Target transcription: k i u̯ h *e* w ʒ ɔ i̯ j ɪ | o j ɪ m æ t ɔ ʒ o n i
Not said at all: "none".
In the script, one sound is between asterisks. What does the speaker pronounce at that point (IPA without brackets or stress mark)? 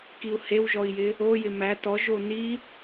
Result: e